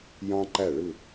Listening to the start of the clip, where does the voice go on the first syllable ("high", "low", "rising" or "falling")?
high